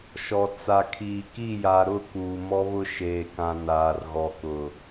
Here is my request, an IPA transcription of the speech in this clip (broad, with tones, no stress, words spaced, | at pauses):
ʃɔ˨ t͡sa˨kʰiː˨ ki˦˨ja˨ɾʊ˦˨ kuː˨mɔ˦βʊ˦ ʃeː˨kã˨ naː˨rɣɔ˨kʊ˨